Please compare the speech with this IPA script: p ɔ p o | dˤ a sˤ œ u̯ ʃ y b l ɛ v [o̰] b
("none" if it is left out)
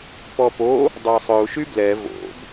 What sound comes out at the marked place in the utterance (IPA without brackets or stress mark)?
o̰